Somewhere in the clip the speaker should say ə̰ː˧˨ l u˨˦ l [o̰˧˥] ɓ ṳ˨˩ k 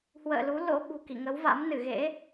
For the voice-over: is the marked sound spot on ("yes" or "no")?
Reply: yes